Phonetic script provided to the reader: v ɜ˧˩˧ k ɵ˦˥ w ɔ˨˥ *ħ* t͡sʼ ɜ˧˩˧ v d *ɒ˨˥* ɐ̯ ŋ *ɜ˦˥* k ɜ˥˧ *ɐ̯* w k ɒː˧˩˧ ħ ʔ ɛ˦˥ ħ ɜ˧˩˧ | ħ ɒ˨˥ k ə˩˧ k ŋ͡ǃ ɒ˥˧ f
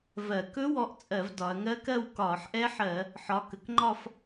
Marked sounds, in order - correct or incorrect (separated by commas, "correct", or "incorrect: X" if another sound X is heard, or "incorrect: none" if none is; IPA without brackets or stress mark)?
incorrect: ʔ, incorrect: ɒ˩˧, correct, incorrect: none